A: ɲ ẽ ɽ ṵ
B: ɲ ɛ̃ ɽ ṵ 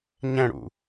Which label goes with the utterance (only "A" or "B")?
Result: B